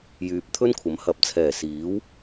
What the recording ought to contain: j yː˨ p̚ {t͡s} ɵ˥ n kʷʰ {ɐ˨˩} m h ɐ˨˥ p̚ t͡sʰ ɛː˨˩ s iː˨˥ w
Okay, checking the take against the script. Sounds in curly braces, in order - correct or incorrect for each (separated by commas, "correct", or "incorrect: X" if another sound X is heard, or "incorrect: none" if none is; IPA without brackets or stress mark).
incorrect: t̪ʰ, incorrect: ɐ˨˥